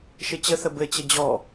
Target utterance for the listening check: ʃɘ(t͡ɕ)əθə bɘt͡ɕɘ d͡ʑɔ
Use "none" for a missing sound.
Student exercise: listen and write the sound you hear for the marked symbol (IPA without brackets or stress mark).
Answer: t͡ɕ